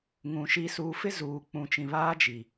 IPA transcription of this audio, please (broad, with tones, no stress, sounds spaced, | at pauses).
ŋ ũ˨ ʃ i˨ s uː˨ f ɪ˦ z uː˨ k͡p ũ˨ t͡ʃ ĩ˨ β aː˦ d͡ʒ i˨